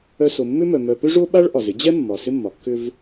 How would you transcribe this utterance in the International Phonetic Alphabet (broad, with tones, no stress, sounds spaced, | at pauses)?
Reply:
œ˦ s o˨ mː ʏ˥ m œ˨ m œ˨ p ʏ˥ ʐ o˥ ɓ a˥ ɭ ʔ ɒ˩ z ɪ˦ d͡ʑ ɛ˥ mː ɒ˩ s ɪ˦ mː ɒ˩ kː ʏ˦ v